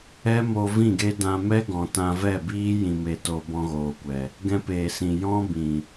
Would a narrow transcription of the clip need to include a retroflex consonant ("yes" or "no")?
no